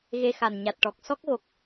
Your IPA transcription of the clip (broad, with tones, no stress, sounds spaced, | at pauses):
ɣ e˧ x a˨˩ n ɲ a˨˩ t̚ ʈ ɔ˨˩ k̚ s ɔ˦˥ k̚ ɣ o˨˩ k̚